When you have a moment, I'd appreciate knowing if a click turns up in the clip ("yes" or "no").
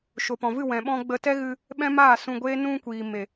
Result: no